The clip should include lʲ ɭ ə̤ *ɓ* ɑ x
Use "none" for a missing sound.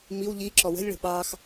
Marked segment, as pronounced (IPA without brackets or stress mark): ɓ